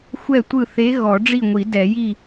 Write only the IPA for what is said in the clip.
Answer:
xʷ ɛ˥˨ tʷ ɯ˥˨ θ e˧˥ ɣ ɔ˨˩˦ ɖ͡ʐ i˥˨ ŋʷ i˨˩˦ d ɛ˨˩˦ j i˥˨

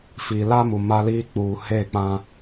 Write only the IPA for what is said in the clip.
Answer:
f iː˨ l a˦ m u˨ m a˦ l iː˦ k͡p uː˨ h e˦˨ k͡p ã˦

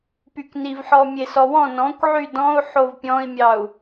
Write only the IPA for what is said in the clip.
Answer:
p y k n i v ħ ɔ mʲ e s ɔ w ɔ̃ n ɔ̃ kʷ ʕ y d ɔ̃ u̯ ħ o v pʲ ɔ̃ i̯ mʲ ɑ u̯

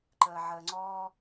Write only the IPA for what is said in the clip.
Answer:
ǃ əː ʕ əː ŋ͡ǀ ɔ

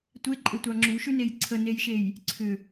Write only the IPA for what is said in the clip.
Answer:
tʷ e ǃʼ e tʷ ɑ ŋ͡ǁ u ʃ ʉ n e j ǀʰ ə n e j ʃ e j | ǀʰ ʏ

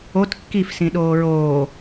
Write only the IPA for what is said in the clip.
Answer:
o t kː i f s ĩ ɗ oː ɹ oː

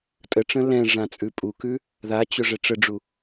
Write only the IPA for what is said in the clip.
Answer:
tʼ ə ʈ͡ʂ ə̃ l ɛ̃ ʐ ã t͡sʼ ʉ pʼ u k ʉ | ð a t͡ɕ ʊ ʐ ɛ ʈ͡ʂ ə ɖ͡ʐ u

